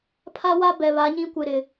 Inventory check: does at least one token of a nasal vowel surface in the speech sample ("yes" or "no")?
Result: yes